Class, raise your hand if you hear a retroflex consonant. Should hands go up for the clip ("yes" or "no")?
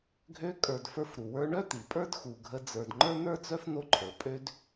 yes